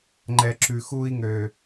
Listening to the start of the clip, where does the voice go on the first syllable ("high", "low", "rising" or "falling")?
low